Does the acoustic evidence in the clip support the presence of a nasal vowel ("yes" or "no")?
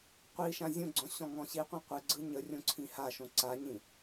yes